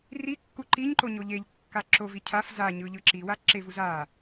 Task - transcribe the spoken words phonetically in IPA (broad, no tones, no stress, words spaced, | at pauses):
rikːu ǃiɲǃo ɲoʎeʎkːa ǁovi cʰaf zaɲɯ ʎɯǁiwa ǁevuz a